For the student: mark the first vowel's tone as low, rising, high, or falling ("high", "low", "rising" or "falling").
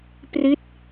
falling